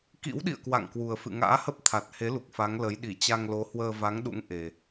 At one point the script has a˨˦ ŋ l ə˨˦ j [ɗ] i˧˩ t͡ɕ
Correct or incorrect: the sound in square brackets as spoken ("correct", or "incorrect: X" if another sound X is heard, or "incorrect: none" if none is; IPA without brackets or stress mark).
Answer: correct